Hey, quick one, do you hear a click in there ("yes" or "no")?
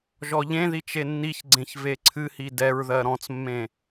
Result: yes